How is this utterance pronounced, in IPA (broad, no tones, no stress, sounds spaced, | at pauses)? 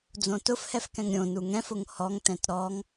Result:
d͡z õ t ʊ f h ɛ f k ɛ̃ ŋ ɾʲ õ n u ŋ ɛ̃ f ʊ ŋ h ɔ ŋ t ɛ̃ t ɾ ɔ ŋ